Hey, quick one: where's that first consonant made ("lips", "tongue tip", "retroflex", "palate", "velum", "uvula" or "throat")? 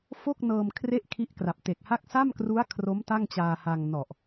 lips